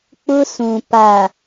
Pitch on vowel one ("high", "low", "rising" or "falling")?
high